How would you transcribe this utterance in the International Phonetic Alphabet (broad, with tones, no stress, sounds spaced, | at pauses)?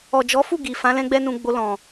ɔ˨ d͡ʒ ɔ˨˦ f u˦˨ ɡ i˨ f ã˨˦ l ɛ̃˦ ɡ͡b ɛ˦ n ũ˧ ɡ͡b o˧ l ɔ̃˨